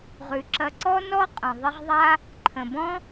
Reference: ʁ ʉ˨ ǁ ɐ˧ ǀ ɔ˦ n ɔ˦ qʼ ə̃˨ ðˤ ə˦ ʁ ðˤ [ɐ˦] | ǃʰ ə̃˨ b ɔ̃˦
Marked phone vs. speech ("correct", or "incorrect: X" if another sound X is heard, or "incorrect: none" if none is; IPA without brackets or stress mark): incorrect: a˦